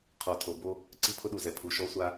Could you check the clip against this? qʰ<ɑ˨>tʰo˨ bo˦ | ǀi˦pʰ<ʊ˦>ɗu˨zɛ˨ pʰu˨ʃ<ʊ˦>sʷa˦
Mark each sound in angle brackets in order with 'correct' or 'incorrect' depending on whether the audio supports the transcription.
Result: incorrect: ɔ˨, correct, incorrect: ɔ˦

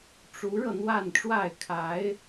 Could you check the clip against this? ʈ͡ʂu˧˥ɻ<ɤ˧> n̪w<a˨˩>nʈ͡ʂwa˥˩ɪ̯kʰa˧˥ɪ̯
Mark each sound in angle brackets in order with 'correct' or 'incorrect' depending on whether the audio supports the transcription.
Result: correct, incorrect: a˥˧

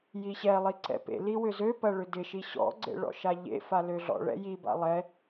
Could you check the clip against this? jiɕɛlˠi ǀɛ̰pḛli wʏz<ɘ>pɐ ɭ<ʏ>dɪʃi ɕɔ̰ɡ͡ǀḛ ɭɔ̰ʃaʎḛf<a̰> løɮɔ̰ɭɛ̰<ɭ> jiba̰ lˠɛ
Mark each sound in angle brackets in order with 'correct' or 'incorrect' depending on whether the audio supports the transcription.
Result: incorrect: ø, correct, incorrect: a, incorrect: none

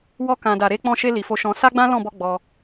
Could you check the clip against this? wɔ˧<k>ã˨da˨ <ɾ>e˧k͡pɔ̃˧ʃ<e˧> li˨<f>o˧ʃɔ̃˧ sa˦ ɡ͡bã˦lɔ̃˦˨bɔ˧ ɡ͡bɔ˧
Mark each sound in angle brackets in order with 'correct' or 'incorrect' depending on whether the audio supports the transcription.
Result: correct, correct, correct, correct

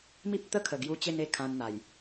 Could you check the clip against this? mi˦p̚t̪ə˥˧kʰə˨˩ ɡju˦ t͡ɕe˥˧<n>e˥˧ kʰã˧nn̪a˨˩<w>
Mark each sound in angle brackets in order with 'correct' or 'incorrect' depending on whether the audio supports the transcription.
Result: correct, incorrect: j

